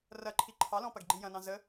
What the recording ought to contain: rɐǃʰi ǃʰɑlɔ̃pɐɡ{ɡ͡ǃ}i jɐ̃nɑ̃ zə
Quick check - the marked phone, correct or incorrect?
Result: correct